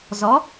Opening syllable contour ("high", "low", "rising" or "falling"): rising